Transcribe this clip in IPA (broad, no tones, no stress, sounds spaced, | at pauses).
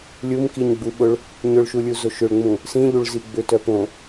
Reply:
lʲ u m k i ɲ ɡ͡b u ɓ ʊ ɭ | ɲ ʊ ɭ ʃ u lʲ u z o ʃ ʏ ɭ ŋ͡m ũ | s ĩ ʎ u ɭ z i ɡ͡b ʏ t œ p õ